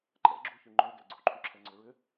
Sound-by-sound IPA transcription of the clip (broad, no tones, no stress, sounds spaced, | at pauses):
ǃʼ ɛ̰ ɡ͡ǁ u ç y ŋ͡ǃ œ ɡ ɛ̰ ɡ͡ǀ u ǃʰ y ǁʰ ɛ ŋ͡ǀ ʏ ɹ ʏ